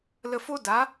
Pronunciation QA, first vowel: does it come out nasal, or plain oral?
oral